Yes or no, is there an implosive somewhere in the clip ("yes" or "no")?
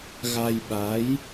yes